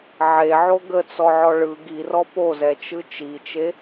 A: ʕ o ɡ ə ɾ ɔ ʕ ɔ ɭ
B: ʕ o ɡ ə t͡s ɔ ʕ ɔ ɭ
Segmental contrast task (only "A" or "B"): B